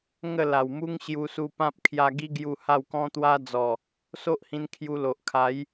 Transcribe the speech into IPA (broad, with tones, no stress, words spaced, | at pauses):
ŋə˥˧la˨˩wmu˦ŋ ɕju˧su˧pã˦p̚ kʰja˧ɡi˦ɡju˧ ha˥˧wkɔ̃˦t̪wa˦d͡zɔ˨˩ | so˦ʔhĩ˧n kʰju˧lo˨ʔkʰa˨˦j